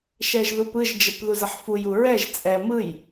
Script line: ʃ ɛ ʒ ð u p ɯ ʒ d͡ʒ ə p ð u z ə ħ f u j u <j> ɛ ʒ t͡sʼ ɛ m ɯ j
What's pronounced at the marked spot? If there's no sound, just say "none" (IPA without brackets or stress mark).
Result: ɹ